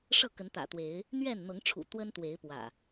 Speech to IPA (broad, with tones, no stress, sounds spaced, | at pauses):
ʂ ɤ˥˨ k ə˨˦ n t̪ ä̰˨˩ t̪ w e˨˦ ɪ̯ | n̪ ɥ ɛ˥˨ n n̪ ɤ˨˦ ŋ ʈ͡ʂʰ ṵ˨˩ t̪ w ə˦ n t̪ w e˨˦ ɪ̯ p w ä̰˨˩